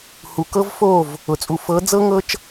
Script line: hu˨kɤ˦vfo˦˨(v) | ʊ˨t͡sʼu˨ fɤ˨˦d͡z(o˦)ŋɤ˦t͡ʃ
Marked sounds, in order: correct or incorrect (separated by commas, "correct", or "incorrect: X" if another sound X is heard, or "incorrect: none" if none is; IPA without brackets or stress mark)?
correct, incorrect: ɤ˦